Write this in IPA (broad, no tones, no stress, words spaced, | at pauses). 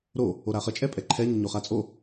ɾo | oɾaχə t͡ʃʼɛpʼɛǃʰɛ ɲəɲoχat͡sʼo